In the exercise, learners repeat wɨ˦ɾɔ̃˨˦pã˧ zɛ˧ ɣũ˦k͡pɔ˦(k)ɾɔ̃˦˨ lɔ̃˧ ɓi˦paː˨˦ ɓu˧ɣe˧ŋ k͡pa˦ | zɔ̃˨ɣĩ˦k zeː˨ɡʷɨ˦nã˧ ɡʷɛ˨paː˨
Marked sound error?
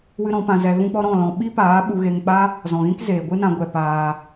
yes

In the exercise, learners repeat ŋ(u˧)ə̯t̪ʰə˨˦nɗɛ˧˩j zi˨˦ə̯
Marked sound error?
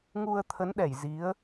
no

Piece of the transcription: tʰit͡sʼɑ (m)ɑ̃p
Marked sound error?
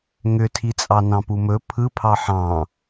yes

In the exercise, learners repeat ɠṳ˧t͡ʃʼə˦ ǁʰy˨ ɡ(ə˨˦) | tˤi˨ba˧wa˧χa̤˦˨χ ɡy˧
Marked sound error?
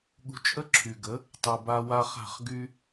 no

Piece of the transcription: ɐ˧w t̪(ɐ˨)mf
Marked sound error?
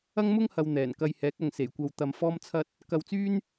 yes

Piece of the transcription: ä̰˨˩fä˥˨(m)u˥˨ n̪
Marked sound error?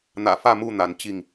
no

